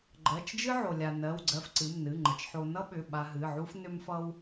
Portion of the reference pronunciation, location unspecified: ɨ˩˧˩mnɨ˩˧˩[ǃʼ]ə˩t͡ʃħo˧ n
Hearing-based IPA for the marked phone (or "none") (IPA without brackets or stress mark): ŋ͡ǃ